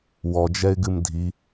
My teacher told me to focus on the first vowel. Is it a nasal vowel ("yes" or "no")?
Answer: no